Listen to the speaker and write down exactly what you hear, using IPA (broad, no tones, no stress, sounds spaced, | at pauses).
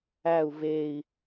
æ u̯ v e i̯